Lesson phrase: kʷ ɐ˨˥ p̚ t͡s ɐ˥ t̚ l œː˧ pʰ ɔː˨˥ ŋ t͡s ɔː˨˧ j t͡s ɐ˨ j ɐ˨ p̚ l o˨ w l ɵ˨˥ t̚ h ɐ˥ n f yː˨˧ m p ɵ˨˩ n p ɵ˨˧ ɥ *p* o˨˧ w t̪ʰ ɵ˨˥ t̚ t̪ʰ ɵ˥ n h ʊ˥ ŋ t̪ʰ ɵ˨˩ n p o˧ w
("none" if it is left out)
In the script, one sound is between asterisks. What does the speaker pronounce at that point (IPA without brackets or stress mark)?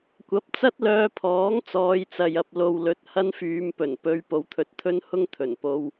p